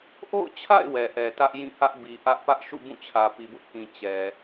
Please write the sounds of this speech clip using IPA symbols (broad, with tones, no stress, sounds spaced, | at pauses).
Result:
ʔ o̰˦˨ ʊ̯ t͡ɕʰ a̰˦˨ ɪ̯ w ɛ˨ ʔ ɛ˨ t ä˦ ʔ j ĩ˦˨ h ä˦ ʔ b i˨ ʔ ä˦ ʔ p ä˦ ʔ ʃ ṵ˦˨ b ũ˦˨ t͡ɕʰ ä˨ p i˨ b ʊ˦ ʔ k ĩ˨ t͡ɕ ɛ˨